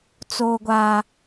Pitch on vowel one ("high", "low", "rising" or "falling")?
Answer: high